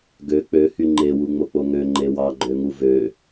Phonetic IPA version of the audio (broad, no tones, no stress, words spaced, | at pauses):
ɡø k͡pøhy ŋ͡ǃewuŋ͡mok͡po ŋøŋ͡ǃe wɑɡ͡ǃøŋu vø